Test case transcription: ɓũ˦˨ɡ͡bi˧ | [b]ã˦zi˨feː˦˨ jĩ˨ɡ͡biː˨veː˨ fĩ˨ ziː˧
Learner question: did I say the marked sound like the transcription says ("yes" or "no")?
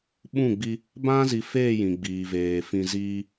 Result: yes